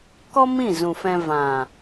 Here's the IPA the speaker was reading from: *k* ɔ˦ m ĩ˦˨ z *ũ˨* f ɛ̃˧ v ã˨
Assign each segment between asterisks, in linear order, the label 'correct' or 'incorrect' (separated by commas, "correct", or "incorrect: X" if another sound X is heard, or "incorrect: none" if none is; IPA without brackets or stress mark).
correct, correct